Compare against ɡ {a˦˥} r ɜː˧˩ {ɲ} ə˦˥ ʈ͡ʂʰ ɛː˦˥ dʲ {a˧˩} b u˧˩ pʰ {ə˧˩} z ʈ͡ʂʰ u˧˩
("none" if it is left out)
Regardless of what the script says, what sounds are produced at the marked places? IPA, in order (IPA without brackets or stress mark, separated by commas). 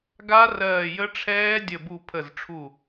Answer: a˦˥, j, ə˧˩, ə˧˩